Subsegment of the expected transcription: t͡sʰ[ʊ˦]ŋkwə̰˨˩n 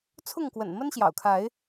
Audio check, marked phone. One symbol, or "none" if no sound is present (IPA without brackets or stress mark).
ʊ˥˨